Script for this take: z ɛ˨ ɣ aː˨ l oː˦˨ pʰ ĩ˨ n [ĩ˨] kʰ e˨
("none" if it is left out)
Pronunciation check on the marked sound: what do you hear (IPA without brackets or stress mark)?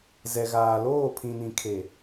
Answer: ĩ˨